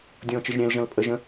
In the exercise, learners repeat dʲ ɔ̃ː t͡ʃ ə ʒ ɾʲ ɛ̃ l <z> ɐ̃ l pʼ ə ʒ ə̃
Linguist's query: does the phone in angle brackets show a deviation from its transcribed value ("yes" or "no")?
yes